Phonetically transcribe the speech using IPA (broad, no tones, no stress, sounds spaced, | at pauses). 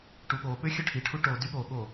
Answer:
ʈ u ɠ o ɓ ø xʲ ɵ ʈʰ i ʈʰ u ʈ o d y ɠ o ɠ o